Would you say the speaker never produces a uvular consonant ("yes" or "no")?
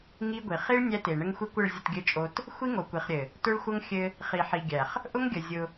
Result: no